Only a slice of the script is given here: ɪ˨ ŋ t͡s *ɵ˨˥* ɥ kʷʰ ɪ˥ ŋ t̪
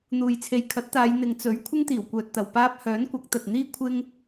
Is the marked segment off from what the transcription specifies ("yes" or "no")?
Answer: no